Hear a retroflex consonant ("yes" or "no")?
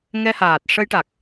yes